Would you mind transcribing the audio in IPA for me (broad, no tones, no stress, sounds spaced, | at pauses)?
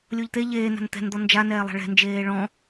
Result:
lʲ o ʎ t̪ e ʎ eː n a̤ n t̪ ɛ̤ n d̪ ɔ n d͡ʒ a n ɛː lˠ a̤ ɭ ɛ̤ n d͡ʒ eː ɭ ɔ̃